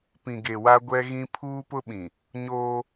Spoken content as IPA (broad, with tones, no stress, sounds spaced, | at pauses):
p ĩ˨ ɡ e˨ w a˦ ɡʷ ɛ˦ ɣ ĩ˦ pʰ uː˦ p ʊ˦ ɓ ĩ˨ | ɲ oː˦